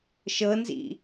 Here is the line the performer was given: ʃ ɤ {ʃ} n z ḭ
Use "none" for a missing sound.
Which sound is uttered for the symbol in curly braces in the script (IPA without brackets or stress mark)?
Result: none